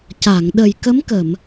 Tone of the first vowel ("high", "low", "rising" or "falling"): low